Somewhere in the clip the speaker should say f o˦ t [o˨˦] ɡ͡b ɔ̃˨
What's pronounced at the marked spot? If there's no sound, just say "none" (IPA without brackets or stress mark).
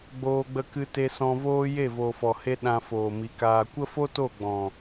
o˦˨